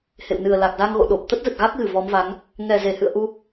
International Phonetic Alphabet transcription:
hḛ˧˨wnɨ˨˩ə̯ la˨˩k̚za˧ŋɣo̰˧˨ ɗo˨˩p̚ t̪ə˦˥t̚zə˨˩t̚ɣa˦˥k̚ɣɨ˧˩ vɔ˨˦mva˨˦ŋ | ŋɛ˨˩ze˧˩hɨ̰˧˨ə̯ ʔu˧

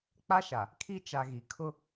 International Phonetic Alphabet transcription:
k͡pa˦ʃa˨ | kʰi˦ t͡ʃa˨ɣi˨kʰʊ˦

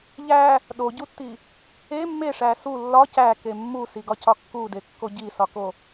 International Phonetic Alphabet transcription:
ʎæ | ɗoɟutːi | e mːeʂæ su lːɒ cæke mːusiɡɒcɒ kːudekːo ɟisɒko

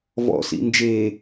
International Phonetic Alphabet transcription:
vɔ̰sḭ nd͡ʒe

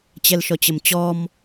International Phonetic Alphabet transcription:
t͡ɕɛlʃɔt͡ɕəmt͡ɕɔm

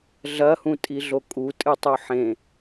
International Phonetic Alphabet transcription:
ɮɐhũtʼiɮo kʼutʼɨtˤu ħẽ

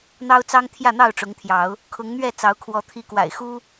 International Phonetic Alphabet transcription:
n̪ɑ˦ʊ̯t͡sɑ˦ŋ t̪ʰjä˥˨n̪ɑ˥˨ʊ̯ʈ͡ʂʊ˨˦ŋt̪ʰjɑ˨˦ʊ̯ | kʰʊ˨˦ŋn̪ɥɛ˥˨ t͡sɑ˨˦ʊ̯kʰwɔ˨˦ t̪ʰi˨˦kwa̰˨˩ɪ̯xu˦

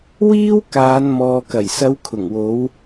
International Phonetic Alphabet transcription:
wiː˥wkaː˨˧n mɔː˨kɐ˨˩jsɐ˨˧w kʰʊ˨˩ŋwo˨˧w

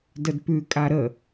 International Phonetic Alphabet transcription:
dədpʉ kʼaɾə

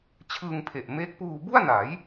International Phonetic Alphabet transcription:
t͡ɕʰɯː˧ŋpʰe˨˩ʔmeː˦˥k̚ puː˧bu˥˩a̯na˩˦j

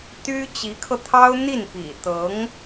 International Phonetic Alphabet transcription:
t̪y˥ t͡ɕi˧˥kʰɤ˧t̪ʰɑ˥ʊ̯ n̪i˥˩npḭ˨˩ t̪ɤ˧˥ŋ

